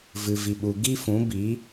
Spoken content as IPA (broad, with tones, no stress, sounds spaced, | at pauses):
v ɨ˨ v i˨ ɓ u˨ ɡ i˦ f ũ˨˦ b i˨˦